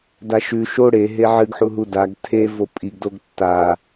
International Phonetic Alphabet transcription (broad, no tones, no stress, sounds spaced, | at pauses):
d a ʃ ʉ ʃ o ɽ e ɦ e ʕ ɨ ɡ ħ u ɦ u d a ɡ tʰ e v o pʼ i ɡ d o ɡ tː a